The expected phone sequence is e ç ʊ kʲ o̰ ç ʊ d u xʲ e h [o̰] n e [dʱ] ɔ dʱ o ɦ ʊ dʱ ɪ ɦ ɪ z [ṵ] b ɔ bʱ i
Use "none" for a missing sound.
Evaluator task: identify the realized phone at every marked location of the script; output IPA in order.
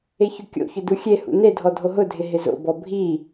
ṵ, dʱ, o̰

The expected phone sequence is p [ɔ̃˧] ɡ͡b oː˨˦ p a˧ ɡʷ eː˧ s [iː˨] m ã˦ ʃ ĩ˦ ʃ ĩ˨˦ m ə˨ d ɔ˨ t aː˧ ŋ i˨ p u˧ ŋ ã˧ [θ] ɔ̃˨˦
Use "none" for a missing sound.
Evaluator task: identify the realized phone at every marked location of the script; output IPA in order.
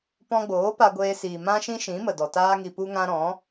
ɔ̃˧, iː˨, ɾ

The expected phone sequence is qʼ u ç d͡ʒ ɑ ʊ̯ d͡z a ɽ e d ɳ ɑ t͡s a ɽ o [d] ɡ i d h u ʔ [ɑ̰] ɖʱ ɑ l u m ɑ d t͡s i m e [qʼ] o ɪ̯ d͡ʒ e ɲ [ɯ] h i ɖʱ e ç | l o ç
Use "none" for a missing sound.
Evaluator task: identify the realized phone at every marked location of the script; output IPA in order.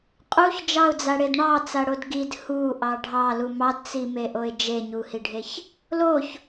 d, ɑ, ʔ, u

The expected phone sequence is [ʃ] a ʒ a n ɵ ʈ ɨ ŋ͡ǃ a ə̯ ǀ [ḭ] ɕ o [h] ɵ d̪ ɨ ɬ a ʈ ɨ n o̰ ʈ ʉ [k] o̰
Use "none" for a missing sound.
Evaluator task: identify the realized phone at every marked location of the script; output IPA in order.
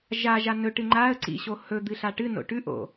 ʒ, ḭ, h, ʔ

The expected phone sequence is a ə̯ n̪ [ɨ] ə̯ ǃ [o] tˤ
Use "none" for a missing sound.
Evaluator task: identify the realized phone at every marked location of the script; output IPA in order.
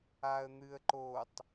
ɨ, o

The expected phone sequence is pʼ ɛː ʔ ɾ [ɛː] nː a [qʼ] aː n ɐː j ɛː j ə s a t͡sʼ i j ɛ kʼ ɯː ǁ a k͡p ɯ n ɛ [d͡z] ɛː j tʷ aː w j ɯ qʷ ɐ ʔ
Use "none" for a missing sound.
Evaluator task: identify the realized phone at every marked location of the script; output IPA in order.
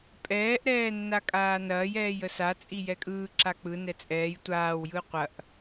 ɛː, kʼ, t͡sʼ

